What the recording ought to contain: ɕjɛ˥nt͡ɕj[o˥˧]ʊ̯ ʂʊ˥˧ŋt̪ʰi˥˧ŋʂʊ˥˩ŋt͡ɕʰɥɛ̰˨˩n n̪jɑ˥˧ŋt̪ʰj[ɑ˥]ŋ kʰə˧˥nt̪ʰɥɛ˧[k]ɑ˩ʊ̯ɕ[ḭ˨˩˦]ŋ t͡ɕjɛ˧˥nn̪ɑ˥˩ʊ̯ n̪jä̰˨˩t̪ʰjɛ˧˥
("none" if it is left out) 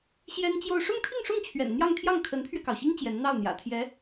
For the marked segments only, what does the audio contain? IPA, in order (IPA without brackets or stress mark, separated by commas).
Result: o˥˧, ɑ˥˩, k, i˥